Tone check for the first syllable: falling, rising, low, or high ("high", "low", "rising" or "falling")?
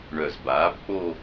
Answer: low